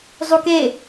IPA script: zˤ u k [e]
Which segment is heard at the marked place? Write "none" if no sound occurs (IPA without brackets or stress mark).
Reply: e